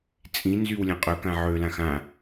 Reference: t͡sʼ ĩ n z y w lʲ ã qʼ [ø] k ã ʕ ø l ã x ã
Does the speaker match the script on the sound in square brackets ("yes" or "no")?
yes